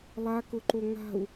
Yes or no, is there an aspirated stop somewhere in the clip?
no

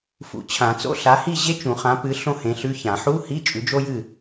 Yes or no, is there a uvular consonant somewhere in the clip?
yes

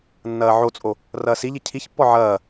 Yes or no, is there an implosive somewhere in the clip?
no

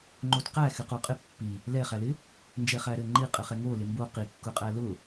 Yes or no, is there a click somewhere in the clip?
yes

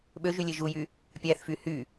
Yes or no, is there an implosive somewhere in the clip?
yes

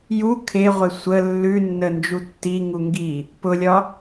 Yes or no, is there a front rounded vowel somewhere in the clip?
no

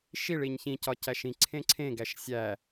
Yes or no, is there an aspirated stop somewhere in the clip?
yes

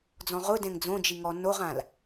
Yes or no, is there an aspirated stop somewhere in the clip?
no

